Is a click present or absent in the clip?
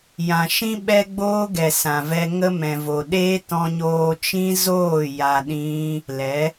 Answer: absent